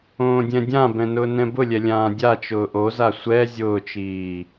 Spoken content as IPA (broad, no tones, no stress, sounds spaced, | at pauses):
õː dʲ ɛ̃ dʲ ã b ɛ̃ n ʊː n ɛ̃ b ʊ lʲ ɛ lʲ ãː dʲ a t͡ʃ ʊː ʔ o z a sʷ ɛ zʲ ʊː t͡ʃ iː